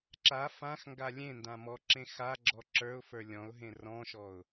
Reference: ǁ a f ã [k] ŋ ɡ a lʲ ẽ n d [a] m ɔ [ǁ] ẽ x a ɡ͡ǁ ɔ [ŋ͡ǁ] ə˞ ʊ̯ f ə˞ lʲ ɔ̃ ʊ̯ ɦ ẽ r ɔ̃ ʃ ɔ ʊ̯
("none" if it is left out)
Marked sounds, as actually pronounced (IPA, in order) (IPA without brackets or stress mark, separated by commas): x, ã, ǁ, ǁ